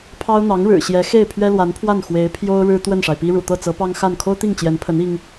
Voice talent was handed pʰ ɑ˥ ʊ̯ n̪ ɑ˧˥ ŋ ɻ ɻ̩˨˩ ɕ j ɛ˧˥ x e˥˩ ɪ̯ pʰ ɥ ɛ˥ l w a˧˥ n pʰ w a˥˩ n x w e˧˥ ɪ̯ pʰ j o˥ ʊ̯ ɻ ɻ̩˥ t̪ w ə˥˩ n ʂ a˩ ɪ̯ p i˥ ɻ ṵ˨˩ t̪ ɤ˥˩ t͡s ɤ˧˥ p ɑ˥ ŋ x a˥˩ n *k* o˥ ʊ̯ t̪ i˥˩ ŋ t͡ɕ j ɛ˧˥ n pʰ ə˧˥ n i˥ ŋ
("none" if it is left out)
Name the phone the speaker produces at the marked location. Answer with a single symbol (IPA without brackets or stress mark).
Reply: kʰ